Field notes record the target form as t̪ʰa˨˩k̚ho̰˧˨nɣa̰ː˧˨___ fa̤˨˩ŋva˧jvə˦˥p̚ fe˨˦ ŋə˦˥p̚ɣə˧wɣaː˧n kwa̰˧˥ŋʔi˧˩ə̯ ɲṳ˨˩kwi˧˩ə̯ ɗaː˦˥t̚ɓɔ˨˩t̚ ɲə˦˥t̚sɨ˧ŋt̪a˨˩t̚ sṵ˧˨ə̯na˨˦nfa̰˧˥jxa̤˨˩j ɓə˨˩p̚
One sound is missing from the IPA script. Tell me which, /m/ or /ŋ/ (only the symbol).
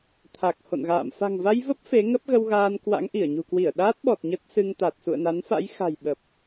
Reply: m